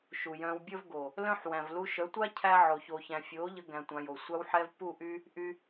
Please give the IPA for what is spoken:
ʃu˨jœ̃ː˧w bʲəː˦v ɡo˨ | lœ̃˦ħ wæ̃˨vlu˧ʃœ˨˦tʷa˦ cʰæ˦ ʕo˨ çoː˨çæ̃˨fʲoː˨˦ʎə˧ ɡæ̃˧tʷã˧jo˨ sʷa˧wħɛ˧v pu˦˨ʔy˦ | ʔy˦

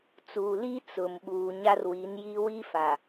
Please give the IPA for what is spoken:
t͡suː˨li˦ t͡sʊ˨m ɓuː˨ɲa˦rwi˨˦n ji˦ wi˦fa˨

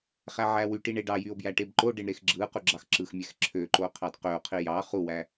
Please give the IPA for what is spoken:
χæʕæwyʈi ɳeɖɑjyo̯ bjæʈebǃoɖeɳ ɾexɡ͡ǁɯqu ɡ͡ǁɑxǁɯxmʲæx ǁʰøǃo qʰɑdqøo̯qʰi jɑ χuwæ

